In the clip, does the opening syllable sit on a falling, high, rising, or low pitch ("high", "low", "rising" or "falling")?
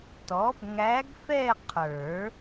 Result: rising